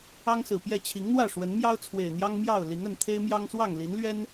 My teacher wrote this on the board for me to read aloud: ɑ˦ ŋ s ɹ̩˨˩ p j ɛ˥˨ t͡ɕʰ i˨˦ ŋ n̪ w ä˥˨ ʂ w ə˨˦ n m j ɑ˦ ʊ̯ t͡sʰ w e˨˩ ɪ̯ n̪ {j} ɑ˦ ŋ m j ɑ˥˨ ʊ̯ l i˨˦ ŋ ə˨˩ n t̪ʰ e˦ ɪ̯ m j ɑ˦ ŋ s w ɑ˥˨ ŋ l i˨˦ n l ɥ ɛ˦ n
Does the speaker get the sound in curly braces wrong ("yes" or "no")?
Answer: no